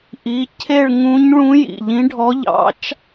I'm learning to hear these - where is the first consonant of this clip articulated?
throat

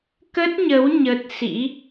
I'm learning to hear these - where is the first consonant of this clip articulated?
velum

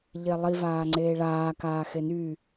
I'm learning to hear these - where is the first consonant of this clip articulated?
palate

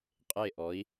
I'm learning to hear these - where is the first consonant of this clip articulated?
uvula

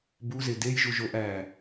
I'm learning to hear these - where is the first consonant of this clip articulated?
lips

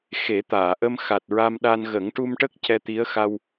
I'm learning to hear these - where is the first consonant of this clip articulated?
velum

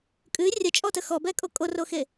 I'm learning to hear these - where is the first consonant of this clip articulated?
velum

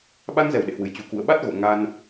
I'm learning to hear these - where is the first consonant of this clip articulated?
lips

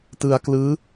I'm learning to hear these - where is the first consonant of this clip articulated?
tongue tip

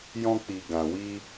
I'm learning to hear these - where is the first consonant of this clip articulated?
palate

